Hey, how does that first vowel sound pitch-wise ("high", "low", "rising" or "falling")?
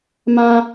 high